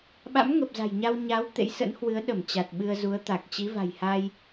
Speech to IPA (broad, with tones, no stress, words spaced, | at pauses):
ɓa̰˧˥mŋə˨˩p̚za̤˨˩jɲa˧w ɲa˨˦w t̪ḛ˧˥jsə̰˧˥nhwɨ˨˦ə̯ ɗə˧˩m t͡ɕa˨˩t̚ɓɨ˧ə̯zu˨˦ə̯ t̪a˨˩k̚ t͡ɕi˨˦va̤˨˩jha˧j